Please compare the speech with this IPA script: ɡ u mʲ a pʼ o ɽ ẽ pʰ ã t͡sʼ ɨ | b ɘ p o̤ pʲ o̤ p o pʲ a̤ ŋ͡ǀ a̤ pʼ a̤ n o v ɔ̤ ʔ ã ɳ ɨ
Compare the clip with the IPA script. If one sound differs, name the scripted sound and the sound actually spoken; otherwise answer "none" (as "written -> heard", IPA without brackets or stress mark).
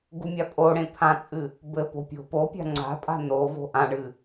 ɔ̤ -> o̤